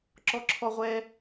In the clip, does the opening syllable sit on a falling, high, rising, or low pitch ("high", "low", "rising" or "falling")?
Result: high